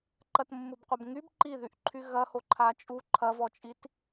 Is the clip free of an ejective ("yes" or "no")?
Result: no